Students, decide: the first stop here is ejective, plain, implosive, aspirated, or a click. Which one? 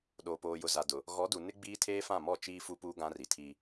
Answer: implosive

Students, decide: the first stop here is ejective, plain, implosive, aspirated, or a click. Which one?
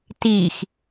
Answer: plain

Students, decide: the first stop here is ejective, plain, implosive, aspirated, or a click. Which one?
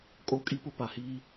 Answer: ejective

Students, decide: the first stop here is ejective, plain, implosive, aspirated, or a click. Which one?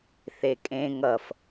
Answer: ejective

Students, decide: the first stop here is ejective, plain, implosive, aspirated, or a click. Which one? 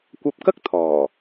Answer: plain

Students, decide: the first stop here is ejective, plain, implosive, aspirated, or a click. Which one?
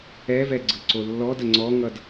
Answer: click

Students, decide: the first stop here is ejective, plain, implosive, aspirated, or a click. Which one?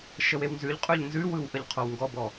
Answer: ejective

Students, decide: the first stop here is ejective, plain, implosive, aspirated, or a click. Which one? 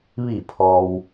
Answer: aspirated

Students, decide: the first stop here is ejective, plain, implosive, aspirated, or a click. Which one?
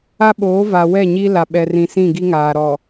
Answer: implosive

